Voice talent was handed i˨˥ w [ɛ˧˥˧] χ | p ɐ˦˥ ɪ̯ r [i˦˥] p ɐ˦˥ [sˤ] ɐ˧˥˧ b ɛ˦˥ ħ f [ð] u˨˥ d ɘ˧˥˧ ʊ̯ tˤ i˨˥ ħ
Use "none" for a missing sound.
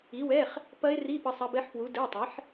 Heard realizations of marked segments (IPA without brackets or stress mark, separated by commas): ɛ˧˥˧, i˧˥˧, sˤ, w